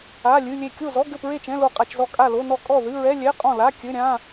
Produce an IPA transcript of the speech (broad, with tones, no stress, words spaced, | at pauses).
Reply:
a˧˥˧lʲɨ˧˥˧lʲe˥˨ kʲo˥˨zɔ˧˥˧ ɡɘ˥˨pɹe˥˨t͡ʃɛ̃˧˥˧ lo˥˨qʼa˧˥˧t͡ʃzɔ˥˨ kʼa˥˨lo˧˥˧nɔ˥˨ kʼɔ˥˨ðɨ˧˥˧ɹɛ˧˥˧ lʲɛ˧˥˧qʼɔ̃˥˨la˧˥˧kʲɘ˧˥˧ ɾʲã˧˥˧